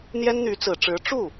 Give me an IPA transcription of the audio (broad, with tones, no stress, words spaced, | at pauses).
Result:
n̪jɛ˥nn̪y˧˥t͡sɹ̩˨˩ʈ͡ʂɻ̩˧˥ ʈ͡ʂu˥˩